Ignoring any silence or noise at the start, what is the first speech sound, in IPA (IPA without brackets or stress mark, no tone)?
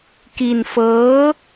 k